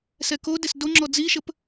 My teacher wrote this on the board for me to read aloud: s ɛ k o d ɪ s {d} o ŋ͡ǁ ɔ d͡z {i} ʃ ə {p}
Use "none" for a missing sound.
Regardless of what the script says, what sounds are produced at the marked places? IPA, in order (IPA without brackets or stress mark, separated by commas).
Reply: d, i, p